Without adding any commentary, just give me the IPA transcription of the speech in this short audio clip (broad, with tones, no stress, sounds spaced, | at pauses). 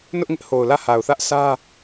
n ʊ˦ ʔ ŋ ɪ˦ ʔ h o˨ ʊ̯ l ä˦˨ h a˨ ʊ̯ θ ä˦ ʔ s ä˦